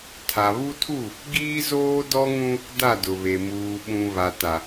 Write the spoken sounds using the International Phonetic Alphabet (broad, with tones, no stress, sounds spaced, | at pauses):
tʰ a˨ β u˦ tʰ u˦˨ | ɡ iː˦ z oː˦ d ɔ˦ ŋ ũ˦ | d a˦˨ d ʊ˨ β e˨ m uː˨ ɓ ũ˨ β a˨ t a˨